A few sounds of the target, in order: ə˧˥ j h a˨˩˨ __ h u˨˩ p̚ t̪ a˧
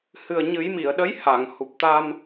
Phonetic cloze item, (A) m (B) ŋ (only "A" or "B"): B